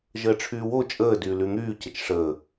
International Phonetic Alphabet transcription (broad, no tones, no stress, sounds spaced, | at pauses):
ʒ əː ʈ͡ʂʰ yː w o t͡ʃʼ əː d yː l y n̪ yː c ə t͡ʃ ʂ əː